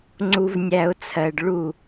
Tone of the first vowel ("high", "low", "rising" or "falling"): low